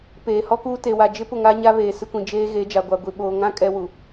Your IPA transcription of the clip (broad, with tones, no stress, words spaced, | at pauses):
peː˨hɔ˦kuː˦ te˨wa˨ d͡ʒɪ˦pʊ˦˨ ŋa˦ ɲa˦βeː˨sɪ˦kʷĩ˨ d͡ʒeː˦ɣe˨˦ d͡ʒa˨ɡʷa˨ɡʷi˨ ɓoː˨ŋã˦ kʼɛ˦wu˨